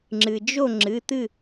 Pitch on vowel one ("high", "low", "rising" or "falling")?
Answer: low